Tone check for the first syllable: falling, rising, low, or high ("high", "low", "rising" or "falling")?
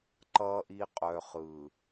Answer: low